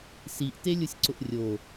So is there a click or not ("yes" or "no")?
yes